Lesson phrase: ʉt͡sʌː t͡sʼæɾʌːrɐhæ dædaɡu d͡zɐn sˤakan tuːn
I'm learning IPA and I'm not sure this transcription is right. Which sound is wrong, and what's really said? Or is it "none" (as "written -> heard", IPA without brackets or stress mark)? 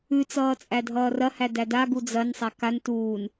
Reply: ɾ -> dʱ